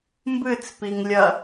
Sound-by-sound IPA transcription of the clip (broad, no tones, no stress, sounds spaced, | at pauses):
m b ɨ t͡s p i ŋ lʲ ɐ